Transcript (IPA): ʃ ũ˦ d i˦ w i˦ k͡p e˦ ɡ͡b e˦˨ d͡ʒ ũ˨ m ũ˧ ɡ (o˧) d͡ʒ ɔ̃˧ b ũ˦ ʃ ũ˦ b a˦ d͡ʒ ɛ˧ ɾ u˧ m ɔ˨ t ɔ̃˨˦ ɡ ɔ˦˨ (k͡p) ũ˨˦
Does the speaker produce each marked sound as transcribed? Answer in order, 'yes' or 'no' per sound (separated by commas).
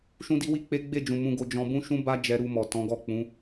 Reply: yes, yes